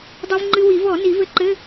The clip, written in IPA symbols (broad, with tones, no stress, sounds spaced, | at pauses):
dˤ i˧ v ŋ͡ǃ ɨ˧ w i˨˩˦ v ɔ˨˩˦ n i˨˩˦ v ɘ˧ ǃ ɘ˧˥˧